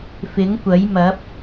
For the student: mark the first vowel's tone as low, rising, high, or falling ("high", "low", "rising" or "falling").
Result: rising